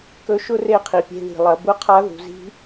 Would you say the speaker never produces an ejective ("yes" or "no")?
yes